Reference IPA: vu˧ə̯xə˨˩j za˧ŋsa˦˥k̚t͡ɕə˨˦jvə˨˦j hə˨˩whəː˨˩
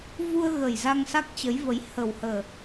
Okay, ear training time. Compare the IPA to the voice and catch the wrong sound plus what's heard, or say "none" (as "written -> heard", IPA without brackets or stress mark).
x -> ɣ